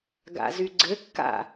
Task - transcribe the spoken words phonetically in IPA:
ɡa̰zyɡ͡ǀɘ kːa̰

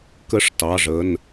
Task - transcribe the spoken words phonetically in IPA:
kə˦˨ʂtɑ˩˧˩ʐə˩˧˩n

